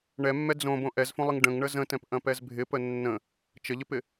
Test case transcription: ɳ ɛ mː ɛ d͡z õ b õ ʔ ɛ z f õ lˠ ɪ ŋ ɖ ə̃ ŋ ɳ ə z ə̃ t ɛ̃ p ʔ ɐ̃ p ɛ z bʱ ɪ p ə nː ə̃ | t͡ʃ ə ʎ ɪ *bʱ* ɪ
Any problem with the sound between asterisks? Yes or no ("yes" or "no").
yes